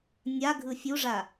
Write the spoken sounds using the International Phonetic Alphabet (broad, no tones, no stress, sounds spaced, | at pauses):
nʲ a ɡʱ ɯ fʲ u ʐ a